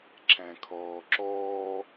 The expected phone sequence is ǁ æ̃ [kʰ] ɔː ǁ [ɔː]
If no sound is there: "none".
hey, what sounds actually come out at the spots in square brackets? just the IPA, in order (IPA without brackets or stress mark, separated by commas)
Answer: kʰ, ɔː